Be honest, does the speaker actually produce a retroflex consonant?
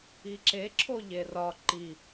no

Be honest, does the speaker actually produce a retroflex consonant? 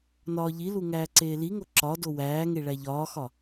yes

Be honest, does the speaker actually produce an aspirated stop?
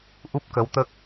no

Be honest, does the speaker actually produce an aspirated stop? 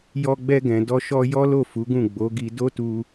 no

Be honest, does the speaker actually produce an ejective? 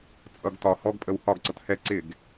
yes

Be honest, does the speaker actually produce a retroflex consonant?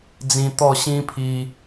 no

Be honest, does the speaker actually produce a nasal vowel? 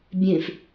yes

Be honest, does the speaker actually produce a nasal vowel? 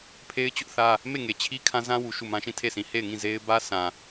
yes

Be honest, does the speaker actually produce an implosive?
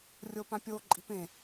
no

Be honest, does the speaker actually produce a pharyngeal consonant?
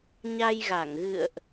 no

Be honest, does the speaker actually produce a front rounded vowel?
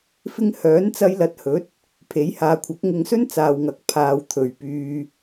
yes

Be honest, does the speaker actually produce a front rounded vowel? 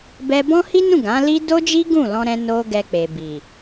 no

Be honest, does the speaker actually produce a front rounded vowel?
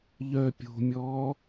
yes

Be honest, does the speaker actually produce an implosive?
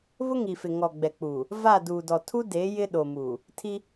yes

